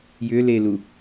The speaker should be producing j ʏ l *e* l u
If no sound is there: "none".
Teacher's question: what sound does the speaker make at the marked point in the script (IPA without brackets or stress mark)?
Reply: e